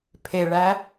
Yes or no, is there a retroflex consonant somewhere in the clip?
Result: yes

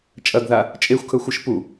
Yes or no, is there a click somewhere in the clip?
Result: no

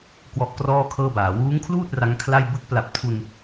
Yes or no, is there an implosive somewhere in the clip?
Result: no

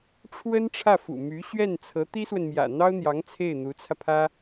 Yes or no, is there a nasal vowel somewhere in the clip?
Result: no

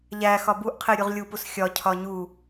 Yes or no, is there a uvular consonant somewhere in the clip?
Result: yes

